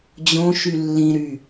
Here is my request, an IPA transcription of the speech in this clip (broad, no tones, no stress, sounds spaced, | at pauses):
d͡ʑ õ ʃ y lː ĩ ɾ y